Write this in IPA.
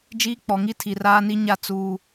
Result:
d͡ʒiː˦k͡pɔ˨ŋi˦ tʰi˨raː˦ni˦ ɲa˦˨ t͡suː˦

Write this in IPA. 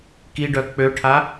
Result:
kiɖœ k͡pøʈʰa

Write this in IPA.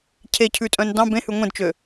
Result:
cʰecʰʉtʼœ̃n dɑ̃ bẽhʉ ŋʷẽdt͡ʃø

